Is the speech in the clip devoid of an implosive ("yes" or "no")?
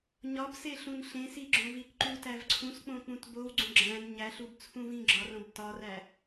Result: yes